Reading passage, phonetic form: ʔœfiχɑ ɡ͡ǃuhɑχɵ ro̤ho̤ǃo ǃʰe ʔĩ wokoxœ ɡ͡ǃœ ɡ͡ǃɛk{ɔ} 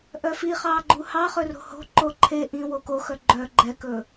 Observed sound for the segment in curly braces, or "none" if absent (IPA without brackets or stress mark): ɵ